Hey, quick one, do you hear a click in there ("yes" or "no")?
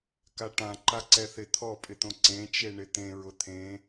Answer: yes